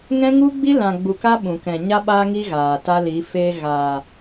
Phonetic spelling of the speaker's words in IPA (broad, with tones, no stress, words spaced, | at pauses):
ŋɛ̃˦ŋu˦ɡ͡bi˦ lã˨ɡ͡bu˨ka˦ ɓũ˨kɛ̃˨ ɲa˦ ɓaː˦ŋi˦ ɣaː˨ta˦li˨˦ feː˧ ɣaː˨